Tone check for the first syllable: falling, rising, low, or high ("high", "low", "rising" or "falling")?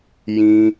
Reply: high